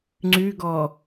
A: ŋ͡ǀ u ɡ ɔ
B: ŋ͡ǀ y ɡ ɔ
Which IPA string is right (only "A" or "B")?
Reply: B